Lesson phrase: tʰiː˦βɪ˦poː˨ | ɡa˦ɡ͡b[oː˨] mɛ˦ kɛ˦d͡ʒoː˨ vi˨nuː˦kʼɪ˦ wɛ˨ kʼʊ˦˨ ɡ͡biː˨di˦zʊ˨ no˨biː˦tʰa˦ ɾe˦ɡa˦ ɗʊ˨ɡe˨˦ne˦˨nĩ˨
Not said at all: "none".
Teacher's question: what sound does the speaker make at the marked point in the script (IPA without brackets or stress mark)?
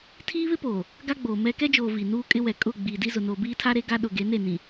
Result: oː˨